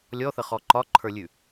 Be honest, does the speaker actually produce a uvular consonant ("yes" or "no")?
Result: yes